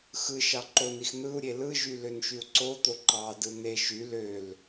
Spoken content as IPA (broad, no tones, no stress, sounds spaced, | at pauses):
x ɯ ʃ ɑ ǃ o n i x n̪ ɯ u̯ ɾʲ e l ɯ ʒ y l ø n ʃ y u̯ ǀ o t̪ o ǃ ɑ d ɯ n̪ e ʃ y l ø l